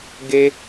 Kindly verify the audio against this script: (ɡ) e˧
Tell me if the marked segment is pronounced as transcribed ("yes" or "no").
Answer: yes